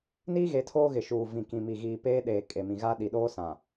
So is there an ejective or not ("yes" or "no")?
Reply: yes